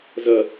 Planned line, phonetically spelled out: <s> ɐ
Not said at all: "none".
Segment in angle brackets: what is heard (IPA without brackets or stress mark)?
z